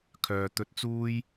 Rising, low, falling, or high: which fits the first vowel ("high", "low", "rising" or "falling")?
low